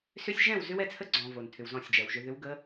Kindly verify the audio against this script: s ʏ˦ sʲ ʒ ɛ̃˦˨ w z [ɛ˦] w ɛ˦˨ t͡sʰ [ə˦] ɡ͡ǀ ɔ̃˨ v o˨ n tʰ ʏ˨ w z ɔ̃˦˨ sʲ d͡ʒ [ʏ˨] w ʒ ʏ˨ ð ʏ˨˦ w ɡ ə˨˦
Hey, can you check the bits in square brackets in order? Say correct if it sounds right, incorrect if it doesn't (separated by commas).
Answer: incorrect, correct, incorrect